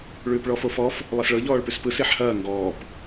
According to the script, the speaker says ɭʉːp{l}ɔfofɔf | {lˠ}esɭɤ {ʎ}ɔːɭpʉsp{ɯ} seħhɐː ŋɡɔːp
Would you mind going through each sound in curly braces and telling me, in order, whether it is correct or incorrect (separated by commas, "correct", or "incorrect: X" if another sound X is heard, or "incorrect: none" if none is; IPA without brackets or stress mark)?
incorrect: ɭ, correct, correct, correct